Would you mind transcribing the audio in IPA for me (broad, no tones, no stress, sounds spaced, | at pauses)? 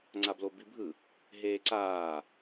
ŋ͡ǀ a b l o b i bʱ ɯ | ɦ eː ǀ aː